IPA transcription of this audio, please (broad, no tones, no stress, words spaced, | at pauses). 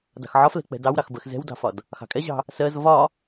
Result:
dɑ̤xʕɒflɛ̤ k͡pɛ̤dɑwɾɑxbɜx zɛ̤wdɑ̤fɒd | xɑ̤kʼɛʑɑ̤ | sɜz vɒ